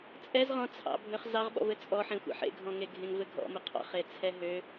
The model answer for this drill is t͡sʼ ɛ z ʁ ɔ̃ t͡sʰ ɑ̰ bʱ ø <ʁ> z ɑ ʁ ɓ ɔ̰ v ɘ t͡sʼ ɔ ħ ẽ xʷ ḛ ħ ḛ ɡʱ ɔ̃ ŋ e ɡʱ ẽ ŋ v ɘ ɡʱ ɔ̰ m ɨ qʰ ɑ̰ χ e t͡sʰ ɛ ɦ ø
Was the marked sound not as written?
yes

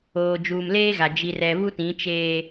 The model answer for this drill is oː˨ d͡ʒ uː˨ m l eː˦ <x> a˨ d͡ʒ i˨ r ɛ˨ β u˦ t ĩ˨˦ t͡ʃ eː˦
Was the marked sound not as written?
yes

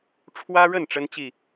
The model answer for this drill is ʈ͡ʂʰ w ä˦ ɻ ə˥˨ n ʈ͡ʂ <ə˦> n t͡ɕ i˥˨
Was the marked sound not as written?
no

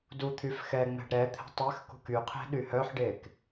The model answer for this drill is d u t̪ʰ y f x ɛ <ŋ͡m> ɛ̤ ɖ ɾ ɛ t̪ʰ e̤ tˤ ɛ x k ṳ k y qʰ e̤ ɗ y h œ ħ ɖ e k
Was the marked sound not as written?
no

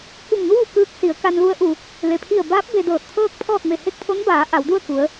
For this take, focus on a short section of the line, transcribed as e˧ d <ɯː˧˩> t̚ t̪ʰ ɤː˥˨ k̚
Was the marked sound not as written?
yes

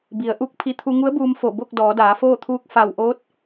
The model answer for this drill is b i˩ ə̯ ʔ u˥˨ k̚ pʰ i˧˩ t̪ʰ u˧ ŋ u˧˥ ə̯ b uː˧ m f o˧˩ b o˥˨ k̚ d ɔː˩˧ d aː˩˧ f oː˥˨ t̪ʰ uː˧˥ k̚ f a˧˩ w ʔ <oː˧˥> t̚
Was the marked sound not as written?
no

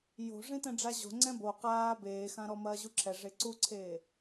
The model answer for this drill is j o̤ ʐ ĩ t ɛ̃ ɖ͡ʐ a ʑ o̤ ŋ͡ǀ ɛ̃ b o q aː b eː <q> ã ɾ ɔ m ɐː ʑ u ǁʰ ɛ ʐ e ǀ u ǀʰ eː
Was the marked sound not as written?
yes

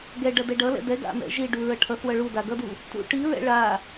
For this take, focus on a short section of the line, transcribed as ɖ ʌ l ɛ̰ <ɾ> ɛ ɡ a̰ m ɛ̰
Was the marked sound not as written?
yes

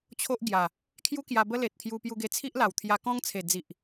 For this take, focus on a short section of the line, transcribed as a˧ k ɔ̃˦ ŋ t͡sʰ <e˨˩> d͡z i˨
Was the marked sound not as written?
no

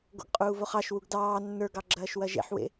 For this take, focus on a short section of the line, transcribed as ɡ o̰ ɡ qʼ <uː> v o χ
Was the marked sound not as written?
no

